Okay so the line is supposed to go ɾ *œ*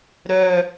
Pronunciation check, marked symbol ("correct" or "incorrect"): correct